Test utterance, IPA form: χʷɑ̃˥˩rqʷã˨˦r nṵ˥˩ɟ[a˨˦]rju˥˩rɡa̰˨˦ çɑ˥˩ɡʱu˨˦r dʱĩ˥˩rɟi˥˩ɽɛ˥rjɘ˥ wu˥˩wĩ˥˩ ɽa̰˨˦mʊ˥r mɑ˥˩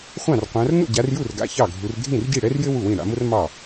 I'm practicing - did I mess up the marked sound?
no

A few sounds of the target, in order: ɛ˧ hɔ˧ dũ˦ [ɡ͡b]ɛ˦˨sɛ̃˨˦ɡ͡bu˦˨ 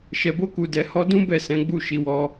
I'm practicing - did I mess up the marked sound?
yes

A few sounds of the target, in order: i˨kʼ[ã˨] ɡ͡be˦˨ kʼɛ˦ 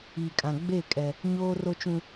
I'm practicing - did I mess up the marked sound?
no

